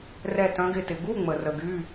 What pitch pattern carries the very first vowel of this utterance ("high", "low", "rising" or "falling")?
falling